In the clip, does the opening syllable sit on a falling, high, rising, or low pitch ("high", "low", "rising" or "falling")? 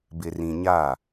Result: low